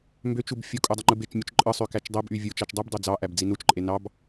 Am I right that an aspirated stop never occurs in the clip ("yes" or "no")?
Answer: yes